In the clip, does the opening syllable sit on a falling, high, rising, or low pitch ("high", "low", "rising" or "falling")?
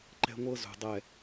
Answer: high